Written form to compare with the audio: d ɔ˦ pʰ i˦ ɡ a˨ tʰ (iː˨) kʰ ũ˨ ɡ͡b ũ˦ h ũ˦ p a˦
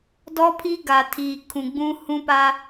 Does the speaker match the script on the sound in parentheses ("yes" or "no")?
yes